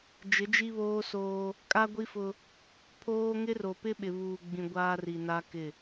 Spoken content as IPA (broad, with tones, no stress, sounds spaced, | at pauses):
d͡ʒ ɪ˨˦ d͡ʒ i˦ β oː˦ s oː˦ | kʼ a˦ ɡʷ i˦ f ʊ˦ | pʰ oː˦ ŋ ɪ˦ r o˨ p ɪ˦ ɓ ɪ˨ β uː˨ ɡ͡b ĩ˨ ɡʷ aː˦ r i˨ n a˦ k ɪ˦˨